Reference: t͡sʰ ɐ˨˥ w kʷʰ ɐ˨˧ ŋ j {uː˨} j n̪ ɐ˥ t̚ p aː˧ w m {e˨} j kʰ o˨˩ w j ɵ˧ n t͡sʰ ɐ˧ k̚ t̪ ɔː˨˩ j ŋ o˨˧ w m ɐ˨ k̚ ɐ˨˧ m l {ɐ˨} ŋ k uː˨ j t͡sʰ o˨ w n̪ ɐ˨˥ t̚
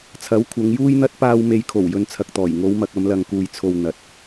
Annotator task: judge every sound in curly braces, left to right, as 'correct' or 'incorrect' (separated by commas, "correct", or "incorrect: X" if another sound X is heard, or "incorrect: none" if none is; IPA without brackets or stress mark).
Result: incorrect: uː˥, correct, correct